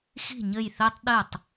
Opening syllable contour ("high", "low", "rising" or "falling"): falling